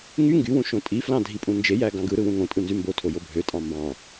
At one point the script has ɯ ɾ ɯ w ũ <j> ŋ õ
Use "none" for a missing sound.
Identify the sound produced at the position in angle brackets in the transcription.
none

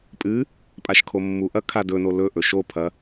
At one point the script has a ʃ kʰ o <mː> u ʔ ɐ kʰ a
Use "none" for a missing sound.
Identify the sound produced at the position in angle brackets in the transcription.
mː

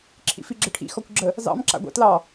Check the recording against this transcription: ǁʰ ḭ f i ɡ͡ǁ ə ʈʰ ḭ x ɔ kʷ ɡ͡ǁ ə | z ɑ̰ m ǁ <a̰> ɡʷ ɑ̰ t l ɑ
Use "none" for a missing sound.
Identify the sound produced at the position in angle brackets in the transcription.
a̰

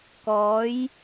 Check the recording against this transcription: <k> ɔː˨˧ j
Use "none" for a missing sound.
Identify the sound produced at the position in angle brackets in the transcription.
k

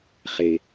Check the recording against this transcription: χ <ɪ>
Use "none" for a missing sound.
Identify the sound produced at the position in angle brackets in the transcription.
ɪ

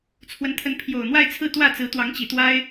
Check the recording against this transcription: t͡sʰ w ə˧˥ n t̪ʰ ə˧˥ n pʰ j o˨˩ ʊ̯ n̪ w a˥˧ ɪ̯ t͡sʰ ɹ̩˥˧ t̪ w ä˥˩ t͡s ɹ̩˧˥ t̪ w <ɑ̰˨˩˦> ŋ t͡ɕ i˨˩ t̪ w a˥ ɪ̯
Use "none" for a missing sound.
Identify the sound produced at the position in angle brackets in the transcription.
ɑ˧˥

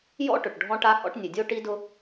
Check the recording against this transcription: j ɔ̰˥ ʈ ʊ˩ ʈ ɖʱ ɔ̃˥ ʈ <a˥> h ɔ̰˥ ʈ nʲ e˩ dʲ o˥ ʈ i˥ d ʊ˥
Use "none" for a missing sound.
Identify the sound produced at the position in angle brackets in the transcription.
a˥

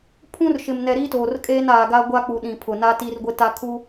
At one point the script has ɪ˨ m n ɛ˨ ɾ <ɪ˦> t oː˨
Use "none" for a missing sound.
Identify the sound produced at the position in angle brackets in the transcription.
i˦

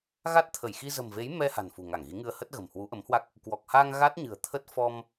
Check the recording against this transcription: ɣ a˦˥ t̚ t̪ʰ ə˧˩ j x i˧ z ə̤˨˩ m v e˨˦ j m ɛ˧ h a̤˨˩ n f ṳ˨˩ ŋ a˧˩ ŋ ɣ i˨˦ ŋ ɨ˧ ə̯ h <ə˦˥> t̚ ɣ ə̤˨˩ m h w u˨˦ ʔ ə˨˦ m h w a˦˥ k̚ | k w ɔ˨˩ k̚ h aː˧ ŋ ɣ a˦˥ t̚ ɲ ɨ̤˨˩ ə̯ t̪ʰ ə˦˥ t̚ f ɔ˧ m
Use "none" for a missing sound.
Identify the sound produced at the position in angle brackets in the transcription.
ə˦˥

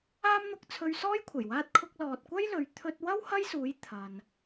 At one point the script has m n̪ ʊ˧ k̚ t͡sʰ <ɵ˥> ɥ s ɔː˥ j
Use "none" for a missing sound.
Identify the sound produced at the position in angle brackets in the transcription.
ɵ˧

